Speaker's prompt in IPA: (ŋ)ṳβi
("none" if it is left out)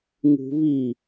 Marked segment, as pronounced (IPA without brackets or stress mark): ŋ